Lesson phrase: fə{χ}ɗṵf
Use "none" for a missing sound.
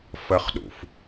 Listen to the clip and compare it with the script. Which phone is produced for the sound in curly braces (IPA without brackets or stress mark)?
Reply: χ